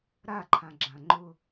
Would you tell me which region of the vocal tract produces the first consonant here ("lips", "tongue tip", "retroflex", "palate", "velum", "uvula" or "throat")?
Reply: tongue tip